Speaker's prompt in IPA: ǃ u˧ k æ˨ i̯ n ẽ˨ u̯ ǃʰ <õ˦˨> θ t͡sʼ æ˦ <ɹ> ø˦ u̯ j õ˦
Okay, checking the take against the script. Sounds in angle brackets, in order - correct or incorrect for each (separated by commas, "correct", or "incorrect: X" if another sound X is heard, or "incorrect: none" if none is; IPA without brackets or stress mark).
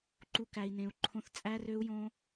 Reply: incorrect: õ˦, incorrect: r